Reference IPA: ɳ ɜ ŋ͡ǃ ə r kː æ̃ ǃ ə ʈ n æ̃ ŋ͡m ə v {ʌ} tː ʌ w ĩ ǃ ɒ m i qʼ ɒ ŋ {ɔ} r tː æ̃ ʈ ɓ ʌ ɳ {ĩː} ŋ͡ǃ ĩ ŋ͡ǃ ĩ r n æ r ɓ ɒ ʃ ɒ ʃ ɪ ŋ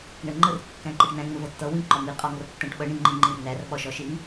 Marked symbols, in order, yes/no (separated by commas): yes, no, no